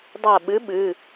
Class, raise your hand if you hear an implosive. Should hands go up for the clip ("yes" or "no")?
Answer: yes